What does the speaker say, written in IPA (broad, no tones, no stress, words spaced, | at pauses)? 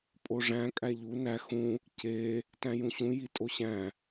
pʼoʐæ̃ kʼæʎu næ xũ | ce | tæ̃jũɕũ jitʼoɕæ̃